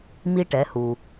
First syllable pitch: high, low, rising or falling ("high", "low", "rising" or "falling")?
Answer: high